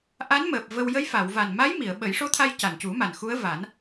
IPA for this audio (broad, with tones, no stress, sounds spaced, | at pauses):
ʔ a˧˥ n m əː˨˩ p̚ v ə˧ w j ə˧˥ j f a˨˩˨ w v a˨˩ n m a˧˥ j m i˨˩˨ ə̯ ɓ ə˨˩˦ j ʂ o˧˥ t̪ʰ a˧ j c a˨˩ n c u˨˩˦ m a˨˩ n x u˧˥ ə̯ v a˨˩˦ n